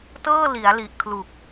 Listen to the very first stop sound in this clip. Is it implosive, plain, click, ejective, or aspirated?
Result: plain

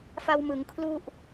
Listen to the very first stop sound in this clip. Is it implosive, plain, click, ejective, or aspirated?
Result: aspirated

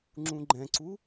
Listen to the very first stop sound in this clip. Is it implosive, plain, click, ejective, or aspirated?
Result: click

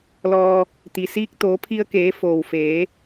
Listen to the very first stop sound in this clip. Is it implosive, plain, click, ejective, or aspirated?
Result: plain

